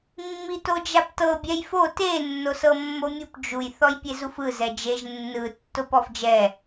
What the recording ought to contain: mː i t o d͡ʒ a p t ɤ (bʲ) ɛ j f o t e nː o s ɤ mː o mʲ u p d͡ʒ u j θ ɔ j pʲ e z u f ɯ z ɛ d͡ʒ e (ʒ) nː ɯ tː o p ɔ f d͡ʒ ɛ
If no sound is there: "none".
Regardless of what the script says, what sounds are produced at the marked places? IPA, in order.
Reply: bʲ, ʒ

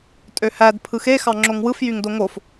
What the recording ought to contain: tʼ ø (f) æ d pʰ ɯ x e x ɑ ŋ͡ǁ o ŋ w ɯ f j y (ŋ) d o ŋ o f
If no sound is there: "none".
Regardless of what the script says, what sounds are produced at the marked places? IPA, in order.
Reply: h, ŋ

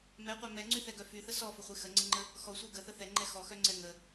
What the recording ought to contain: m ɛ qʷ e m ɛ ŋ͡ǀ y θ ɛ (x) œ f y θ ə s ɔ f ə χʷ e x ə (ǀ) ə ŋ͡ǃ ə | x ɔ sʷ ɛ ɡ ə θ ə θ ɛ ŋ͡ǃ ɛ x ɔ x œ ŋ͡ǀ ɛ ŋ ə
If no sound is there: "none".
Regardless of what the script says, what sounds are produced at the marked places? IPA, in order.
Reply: ɡ, ŋ͡ǀ

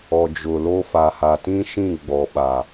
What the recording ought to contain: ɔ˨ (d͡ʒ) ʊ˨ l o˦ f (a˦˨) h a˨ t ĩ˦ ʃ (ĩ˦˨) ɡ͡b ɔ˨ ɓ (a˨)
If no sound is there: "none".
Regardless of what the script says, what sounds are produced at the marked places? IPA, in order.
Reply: d͡ʒ, a˨, ĩ˦˨, a˨

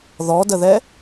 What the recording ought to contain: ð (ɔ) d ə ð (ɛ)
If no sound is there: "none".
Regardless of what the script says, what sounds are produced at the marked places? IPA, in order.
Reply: ɔ, ɛ

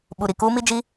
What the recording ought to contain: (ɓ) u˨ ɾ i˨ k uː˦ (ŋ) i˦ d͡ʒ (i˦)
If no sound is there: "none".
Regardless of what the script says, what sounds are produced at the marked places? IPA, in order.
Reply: ɓ, m, i˦

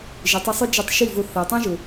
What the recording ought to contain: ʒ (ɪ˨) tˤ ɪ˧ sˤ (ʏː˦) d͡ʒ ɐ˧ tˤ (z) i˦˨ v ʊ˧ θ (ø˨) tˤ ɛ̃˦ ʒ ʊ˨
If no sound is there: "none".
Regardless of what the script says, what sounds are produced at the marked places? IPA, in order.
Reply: ɪ˨, ʏ˦, ʃ, ɛ˨

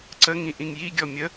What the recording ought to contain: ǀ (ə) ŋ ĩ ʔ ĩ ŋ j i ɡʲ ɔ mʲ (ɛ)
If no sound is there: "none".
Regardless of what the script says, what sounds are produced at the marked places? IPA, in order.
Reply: ə, ə

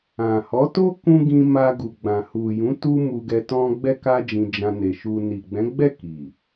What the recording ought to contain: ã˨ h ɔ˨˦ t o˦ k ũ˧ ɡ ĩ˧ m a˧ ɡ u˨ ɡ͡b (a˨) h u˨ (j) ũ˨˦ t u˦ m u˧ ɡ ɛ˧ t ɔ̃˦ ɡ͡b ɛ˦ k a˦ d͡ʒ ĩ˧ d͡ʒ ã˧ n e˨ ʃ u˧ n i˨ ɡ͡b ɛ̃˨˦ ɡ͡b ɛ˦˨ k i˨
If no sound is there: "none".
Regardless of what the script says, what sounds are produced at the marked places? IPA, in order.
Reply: ã˨, j

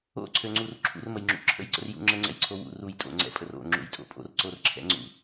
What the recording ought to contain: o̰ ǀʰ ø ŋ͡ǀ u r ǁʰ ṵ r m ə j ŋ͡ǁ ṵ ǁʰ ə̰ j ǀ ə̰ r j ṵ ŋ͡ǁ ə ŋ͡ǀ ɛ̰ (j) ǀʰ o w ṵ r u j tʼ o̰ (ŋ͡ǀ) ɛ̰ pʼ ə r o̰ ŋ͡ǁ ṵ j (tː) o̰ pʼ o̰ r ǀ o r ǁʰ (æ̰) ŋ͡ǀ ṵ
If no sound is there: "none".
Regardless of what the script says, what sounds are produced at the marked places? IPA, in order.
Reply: j, ŋ͡ǀ, tʼ, ɛ̰

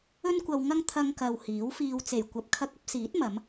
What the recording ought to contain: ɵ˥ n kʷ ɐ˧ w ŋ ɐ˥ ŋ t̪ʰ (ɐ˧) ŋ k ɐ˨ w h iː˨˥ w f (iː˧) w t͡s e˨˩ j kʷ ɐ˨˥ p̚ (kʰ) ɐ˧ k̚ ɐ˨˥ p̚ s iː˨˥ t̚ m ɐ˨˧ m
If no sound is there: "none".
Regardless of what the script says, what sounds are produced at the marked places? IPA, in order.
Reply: ɐ˧, iː˧, kʰ

